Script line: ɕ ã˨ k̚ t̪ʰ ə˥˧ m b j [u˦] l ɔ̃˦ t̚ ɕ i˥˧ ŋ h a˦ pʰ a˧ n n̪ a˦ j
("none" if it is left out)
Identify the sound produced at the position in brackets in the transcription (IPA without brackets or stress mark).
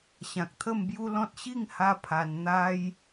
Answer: u˦